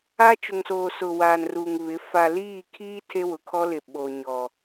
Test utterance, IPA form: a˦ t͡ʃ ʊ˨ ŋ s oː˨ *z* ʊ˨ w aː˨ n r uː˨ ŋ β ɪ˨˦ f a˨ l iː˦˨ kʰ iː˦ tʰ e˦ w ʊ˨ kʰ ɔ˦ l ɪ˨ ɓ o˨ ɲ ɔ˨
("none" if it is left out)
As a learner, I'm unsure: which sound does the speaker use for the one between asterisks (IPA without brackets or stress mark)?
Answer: s